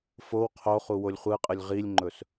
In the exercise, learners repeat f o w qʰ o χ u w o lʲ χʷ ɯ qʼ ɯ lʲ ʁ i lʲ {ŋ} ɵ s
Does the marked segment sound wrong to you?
yes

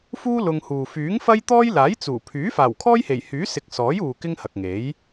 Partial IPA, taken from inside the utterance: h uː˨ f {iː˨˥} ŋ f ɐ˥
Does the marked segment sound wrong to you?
yes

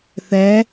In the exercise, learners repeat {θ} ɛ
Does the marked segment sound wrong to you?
no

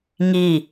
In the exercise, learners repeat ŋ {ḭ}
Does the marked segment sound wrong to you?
yes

